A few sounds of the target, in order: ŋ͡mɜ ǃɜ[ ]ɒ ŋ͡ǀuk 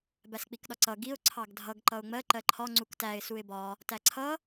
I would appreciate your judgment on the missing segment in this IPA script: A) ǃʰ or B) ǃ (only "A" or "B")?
A